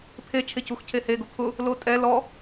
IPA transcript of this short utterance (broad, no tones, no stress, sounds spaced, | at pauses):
pʰ e t͡ʃʰ e c u x cʰ e h e ɡ ʊ pʰ ʊ | l o tʼ ɛ l ɔ